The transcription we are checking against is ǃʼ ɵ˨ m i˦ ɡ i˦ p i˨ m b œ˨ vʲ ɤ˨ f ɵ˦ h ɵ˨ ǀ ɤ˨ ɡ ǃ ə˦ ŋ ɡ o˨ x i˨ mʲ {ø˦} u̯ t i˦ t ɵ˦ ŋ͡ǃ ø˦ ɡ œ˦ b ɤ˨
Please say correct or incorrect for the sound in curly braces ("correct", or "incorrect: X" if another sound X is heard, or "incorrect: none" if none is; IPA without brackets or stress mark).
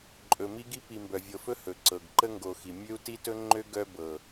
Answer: correct